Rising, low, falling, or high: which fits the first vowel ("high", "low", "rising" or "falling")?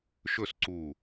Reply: falling